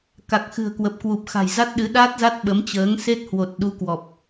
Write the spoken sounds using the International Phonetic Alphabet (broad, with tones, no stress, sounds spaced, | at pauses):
k a˨˩ k̚ x ɨ̤˨˩ ə̯ k w ə˨˩ p̚ k w u˨˩ p̚ x a̤˨˩ j z a˦˥ t̚ ɗ ɨ˨˦ ɗ a˦˥ t̚ z a˦˥ t̚ ɓ ə˨˦ m t͡ɕ əː˨˦ ŋ s e˦˥ t̚ h w o˨˩ t̚ ɗ u˨˦ k w ɔ˨˩ p̚